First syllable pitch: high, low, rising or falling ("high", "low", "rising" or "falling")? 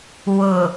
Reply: low